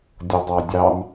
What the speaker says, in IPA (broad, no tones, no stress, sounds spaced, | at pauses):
dʲ ʊ dˤ ɑ dʲ ɑ n